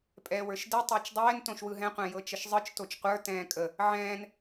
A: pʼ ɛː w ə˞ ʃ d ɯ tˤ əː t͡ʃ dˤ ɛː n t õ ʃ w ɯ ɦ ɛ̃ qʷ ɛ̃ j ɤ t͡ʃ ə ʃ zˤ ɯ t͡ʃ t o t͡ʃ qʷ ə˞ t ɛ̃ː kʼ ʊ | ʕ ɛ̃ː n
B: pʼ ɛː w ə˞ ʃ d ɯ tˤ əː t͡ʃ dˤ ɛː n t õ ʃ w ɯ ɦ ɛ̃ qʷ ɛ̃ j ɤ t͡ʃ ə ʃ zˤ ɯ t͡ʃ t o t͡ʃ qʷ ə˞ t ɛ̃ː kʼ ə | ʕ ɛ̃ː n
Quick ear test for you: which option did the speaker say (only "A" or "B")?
B